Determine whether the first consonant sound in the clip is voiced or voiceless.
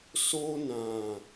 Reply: voiceless